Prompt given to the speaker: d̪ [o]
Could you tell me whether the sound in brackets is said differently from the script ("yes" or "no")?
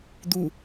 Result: yes